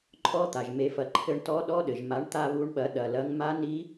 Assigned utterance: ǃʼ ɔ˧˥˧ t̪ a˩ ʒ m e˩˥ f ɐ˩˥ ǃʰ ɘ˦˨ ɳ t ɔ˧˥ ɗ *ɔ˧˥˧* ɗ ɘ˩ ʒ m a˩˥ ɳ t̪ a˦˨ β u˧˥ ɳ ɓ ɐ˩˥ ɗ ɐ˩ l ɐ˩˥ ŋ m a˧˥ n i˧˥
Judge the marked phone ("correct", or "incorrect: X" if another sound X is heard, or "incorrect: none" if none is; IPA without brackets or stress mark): correct